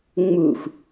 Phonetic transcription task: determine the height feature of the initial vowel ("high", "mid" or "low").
high